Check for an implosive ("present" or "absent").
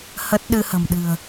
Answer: present